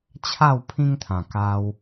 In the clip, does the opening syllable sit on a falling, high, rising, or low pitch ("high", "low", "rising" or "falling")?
falling